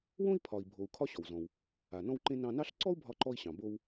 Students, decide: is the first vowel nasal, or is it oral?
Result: nasal